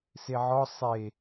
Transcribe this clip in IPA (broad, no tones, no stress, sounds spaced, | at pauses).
s e ʕ ɔ sˤ e